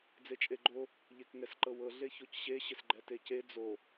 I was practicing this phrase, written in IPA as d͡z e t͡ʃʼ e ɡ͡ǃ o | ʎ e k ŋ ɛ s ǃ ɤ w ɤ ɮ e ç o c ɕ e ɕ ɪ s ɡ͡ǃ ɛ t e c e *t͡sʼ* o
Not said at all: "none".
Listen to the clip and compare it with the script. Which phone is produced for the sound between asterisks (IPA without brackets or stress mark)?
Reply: d͡z